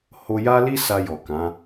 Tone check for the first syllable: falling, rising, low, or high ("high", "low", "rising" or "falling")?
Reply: high